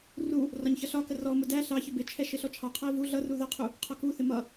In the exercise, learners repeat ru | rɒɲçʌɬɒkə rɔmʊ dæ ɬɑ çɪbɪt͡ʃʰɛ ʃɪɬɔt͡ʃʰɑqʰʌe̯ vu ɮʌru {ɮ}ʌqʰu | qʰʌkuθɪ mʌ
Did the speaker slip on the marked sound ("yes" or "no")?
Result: yes